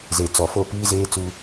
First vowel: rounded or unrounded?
unrounded